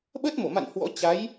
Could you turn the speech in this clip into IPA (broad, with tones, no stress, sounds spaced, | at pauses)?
ɓ ə˦˥ t̚ m o˧˩ m a̰˧˨ n h w ɔ̰˧˥ t͡ɕ a˨˦ j